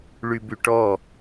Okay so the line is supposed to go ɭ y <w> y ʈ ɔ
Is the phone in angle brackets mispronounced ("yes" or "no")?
yes